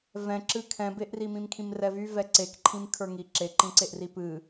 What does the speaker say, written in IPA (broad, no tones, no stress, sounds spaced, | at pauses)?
v ɛ̃ ǁ ɨ kʰ ɛ̃ b e ʔ r i m ĩ m kʰ ĩ m r ɛ v y v ɛ ǀ e k ǃʰ ĩ m kʰ ə˞ ŋ i ǁ e ǃ ĩ ǀ e ʔ r i p ɨ